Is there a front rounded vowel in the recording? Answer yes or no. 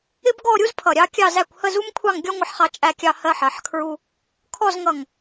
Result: no